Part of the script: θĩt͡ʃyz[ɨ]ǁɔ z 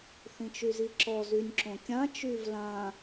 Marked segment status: incorrect: i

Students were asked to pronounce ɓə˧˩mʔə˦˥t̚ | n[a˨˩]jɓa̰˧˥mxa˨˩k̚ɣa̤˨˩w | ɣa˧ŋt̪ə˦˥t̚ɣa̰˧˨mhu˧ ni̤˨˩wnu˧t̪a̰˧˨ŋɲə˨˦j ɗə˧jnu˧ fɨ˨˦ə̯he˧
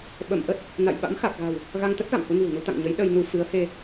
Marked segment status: incorrect: a̰˧˨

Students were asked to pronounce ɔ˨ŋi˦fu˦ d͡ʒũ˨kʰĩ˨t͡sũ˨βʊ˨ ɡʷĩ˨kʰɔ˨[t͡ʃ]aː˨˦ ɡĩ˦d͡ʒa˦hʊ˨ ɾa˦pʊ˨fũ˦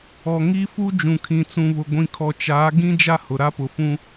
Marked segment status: correct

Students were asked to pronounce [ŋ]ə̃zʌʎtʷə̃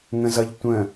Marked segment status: correct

